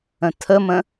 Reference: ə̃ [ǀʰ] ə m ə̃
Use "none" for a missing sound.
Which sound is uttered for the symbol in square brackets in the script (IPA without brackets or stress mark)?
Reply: tʰ